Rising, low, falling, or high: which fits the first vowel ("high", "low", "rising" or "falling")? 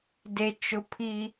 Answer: high